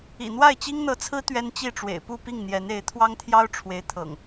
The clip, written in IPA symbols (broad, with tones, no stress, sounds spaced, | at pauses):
ḭ˨˩ n̪ w a˥˨ ɪ̯ t͡ɕ i˦ ŋ n̪ ɤ˨˦ t͡sʰ ɹ̩˦ t̪ ɥ ɛ˦ n t͡ɕ i˥˨ ʈ͡ʂ w ḛ˨˩ ɪ̯ p u˥˨ p i˥˨ ŋ n̪ j ɛ˨˦ n e˨˦ ɪ̯ t̪ʰ w ɑ˦ ŋ t̪ʰ j ɑ˦ ʊ̯ ʈ͡ʂʰ w e˨˦ ɪ̯ t̪ʰ ɤ̰˨˩ ŋ